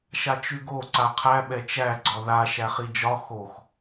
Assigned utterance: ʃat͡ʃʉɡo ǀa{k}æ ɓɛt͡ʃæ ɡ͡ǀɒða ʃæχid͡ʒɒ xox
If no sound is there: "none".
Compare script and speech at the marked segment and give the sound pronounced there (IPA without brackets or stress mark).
qʰ